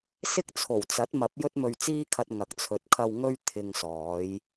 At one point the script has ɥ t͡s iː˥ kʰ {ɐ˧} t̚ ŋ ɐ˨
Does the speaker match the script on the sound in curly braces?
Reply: yes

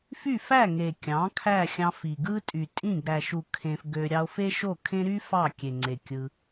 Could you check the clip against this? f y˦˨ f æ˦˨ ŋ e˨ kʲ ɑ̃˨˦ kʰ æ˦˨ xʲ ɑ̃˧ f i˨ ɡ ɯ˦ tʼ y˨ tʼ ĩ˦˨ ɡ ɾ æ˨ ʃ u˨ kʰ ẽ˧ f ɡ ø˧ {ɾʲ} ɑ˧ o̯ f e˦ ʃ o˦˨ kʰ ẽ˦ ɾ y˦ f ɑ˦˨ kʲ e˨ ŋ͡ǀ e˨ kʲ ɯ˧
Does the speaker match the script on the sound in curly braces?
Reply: yes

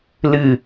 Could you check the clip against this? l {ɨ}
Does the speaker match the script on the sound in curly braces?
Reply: yes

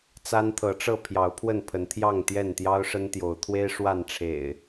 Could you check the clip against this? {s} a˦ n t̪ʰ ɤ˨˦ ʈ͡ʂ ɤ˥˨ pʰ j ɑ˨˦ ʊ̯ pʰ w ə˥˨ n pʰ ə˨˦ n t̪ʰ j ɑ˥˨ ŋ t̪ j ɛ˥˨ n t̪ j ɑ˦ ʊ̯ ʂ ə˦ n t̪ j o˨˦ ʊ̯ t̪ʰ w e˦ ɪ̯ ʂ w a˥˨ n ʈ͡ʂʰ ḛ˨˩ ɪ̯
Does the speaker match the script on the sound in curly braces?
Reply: no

